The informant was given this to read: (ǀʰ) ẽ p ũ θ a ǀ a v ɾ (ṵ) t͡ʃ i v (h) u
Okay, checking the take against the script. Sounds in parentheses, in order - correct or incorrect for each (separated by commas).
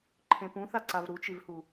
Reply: incorrect, incorrect, correct